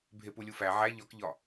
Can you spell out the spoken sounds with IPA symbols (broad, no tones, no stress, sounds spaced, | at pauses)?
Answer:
bʱ e p u lʲ u f æ ʕ æ ʎ ɒ k ʎ ɒ